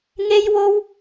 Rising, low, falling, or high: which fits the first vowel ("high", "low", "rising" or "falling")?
high